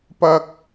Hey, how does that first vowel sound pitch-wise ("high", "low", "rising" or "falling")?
high